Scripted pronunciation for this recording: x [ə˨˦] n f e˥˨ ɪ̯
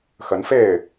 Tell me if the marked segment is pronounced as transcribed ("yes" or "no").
yes